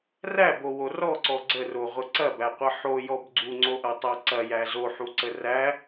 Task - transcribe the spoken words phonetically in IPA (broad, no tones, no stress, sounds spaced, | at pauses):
r æ b o w o r ɔ ǀ ɔ ɡ͡ǀ ə r o ʁʷ ə ǀ ɐ b æ qʷ ɐ ħ o j ɔ b ɡ͡ǀ u ŋ͡ǀ o ʔ ɐ tˤ æ ǀ ɐ j æ z o ħ u ǀ ə r æ